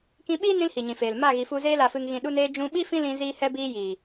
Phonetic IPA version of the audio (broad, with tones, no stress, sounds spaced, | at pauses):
k ĩ˧ ɓ iː˦ n ĩ˦ l h i˨ ɲ ĩ˨ f eː˨ l m a˦˨ ɣ i˨ f u˧ z eː˧ l a˨ f ɨ˨ ŋ ɣ ĩ˨ ɗ u˧ n eː˧ d͡ʒ ũ˧ ɓ i˦ f ĩ˦ l ĩ˧ z iː˧ h ɛ˧ b iː˧ j iː˨